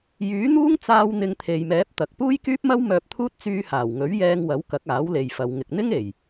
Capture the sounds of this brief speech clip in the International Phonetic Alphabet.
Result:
j yː˨˥ n̪ uː˥ ŋ t͡s aː˧ w n̪ ɪ˧ ŋ t̪ʰ e˨ j m ɛː˨˥ p̚ t̪ ɐ˨ k̚ p uː˥ j k yː˥ p̚ m ɐ˥ w m œː˧ p̚ t̪ʰ uː˥ t̚ t͡s yː˧ h aː˨˩ w ŋ ɵ˨˥ ɥ j ɛː˧ ŋ w ɐ˨˥ w k ɐ˨˥ k̚ aː˨˥ w l e˨ j f ɐ˨ w ŋ ɪ˨ k̚ n̪ ɪ˥ ŋ e˨˩ j

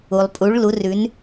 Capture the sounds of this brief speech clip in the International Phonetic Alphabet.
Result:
u˩ lˠ pʼ u˩˧ ɭ l u˩˧ r ʉ˩˧ n

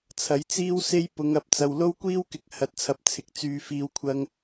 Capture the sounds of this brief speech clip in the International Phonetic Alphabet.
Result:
t͡sʰ ɐ˨˥ j t͡s iː˥ w s e˥ j p ʊ˨˧ ŋ ɐ˨ p̚ t͡s ɐ˨ w l o˥ w kʷ iː˥ w k ɪ˨ k̚ h ɐ˨ t̚ t͡sʰ ɐ˨ p̚ t͡sʰ ɪ˨ k̚ t͡s yː˨˧ f iː˨ w kʷʰ ɐ˧ ŋ

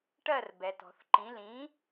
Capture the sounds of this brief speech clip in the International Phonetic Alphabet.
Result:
ʈ ɜ˥˩ r b ɛ˩ t ɔ̤˩ θ ǃ ĩ˩˥ l ĩ˩˥

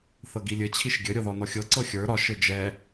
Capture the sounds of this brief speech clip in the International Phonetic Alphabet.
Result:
θ ɤ ɡ i lʲ ɘ t͡ɕʰ i ʃ ɡʲ ɘ ɾʲ ɤ ð ɔ n ɔ xʲ ɤ ǀ ɤ xʲ ə˞ ɾ ɒ ʃ ɘ d͡ʒ ɛ

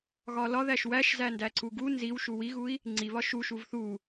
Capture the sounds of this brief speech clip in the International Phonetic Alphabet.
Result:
ɣ ɒ l ɒ ð æ ʃ w æ ʃ z æ n d æ ǀ u ɡ u n z i w ʃ u w i ɣ u i̯ | ŋ͡ǀ i β ɒ ʃ u ʃ u v θ u

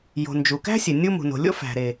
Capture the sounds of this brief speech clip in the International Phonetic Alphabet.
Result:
j o̤˩ n d͡ʒ u˩ k æ̤˥ sʲ e˩ nʲ u˥ m ṳ˩ n o̤˩ lʲ o̰˥ f æ̤˩ ɾ e˩

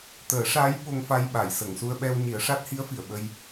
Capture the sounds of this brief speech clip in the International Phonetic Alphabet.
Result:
t̪ əː˨˩˦ ʂ a˧˥ j ɓ o˧ ŋ f a˧ j ɓ a˨˩˨ j s ə˨˩˨ ŋ s u˧ ə̯ ɓ ɛ˧ w ɲ i˨˩˦ ə̯ ʂ a˦˥ t̚ h i˧˥ ə̯ f i˨˩˨ ə̯ ɓ ə˧ j

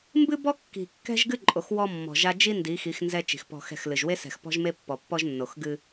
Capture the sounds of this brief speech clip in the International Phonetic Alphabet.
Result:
m b ɨ˦ b ɔ˦ kː i̤˨ kː ɛ̤˦ ʒ ɡ ɨ˦ ǃʼ o˨ x w ɔ˦ mː ɔ̤˨ ʒ a˦ d͡ʒ i˦ n d i˨˦ x i˨˦ x n z ɛ˦ t͡ʃ i̤˨ x p ɔ̤˦˨ x ɛ̤˦˨ x l ɨ˨ ʒ w e˦ s ɛ̤˨ x p ɔ̤˦ ʒ m e˦ pː ɔ˨ pː ɔ˦ ʒ nː o˨ x ɡ ɨ˦

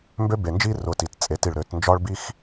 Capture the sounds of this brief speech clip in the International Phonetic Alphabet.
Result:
m b ø˦ b e˨ n d͡ʒ i˦ r ʊ˨ t i˨ t t͡sʼ e˨˦ t i˨ ɭ ɾ ø˨˦ t n d͡ʒ ɒ˦ ɭ b i˦ x

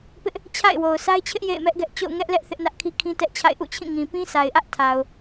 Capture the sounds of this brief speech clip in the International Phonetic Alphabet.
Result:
p ɪ˦ ʔ | t͡ɕʰ a̰˦˨ ɪ̯ w o˨ ʊ̯ s a˦ ɪ̯ t͡ɕʰ ɪ˦ ʔ j ḛ˦˨ ɪ̯ m ɛ˦ ʔ ɡ ɛ˦ ʔ t͡ɕ o̰˦˨ ʊ̯ ŋ ɛ˦ ʔ l ɛ˦ ʔ θ ɪ˦ ʔ n ä˦ ʔ kʰ i˦ kʰ ĩ˦ t ɛ˦ ʔ t͡ɕʰ a̰˦˨ ɪ̯ ʔ ṵ˦˨ t͡ɕʰ ĩ˦˨ ŋ ĩ˨ p ĩ˦ sʰ a˨ ɪ̯ ʔ ä˦ ʔ tʰ a˨ ʊ̯

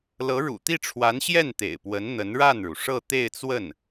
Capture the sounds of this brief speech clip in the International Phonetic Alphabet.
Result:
l ɤ˧˥ ɻ ṵ˨˩ t̪ i˥˩ ʈ͡ʂʰ w a˧˥ n ɕ j ɛ˥˩ n t̪ ḛ˨˩ ɪ̯ p w ə˧˥ n n̪ ə˧˥ n ɻ a˥˩ n ɻ u˩ ʂ ɤ˥˧ t̪ e˥˧ ɪ̯ t͡s w ə˥˩ n

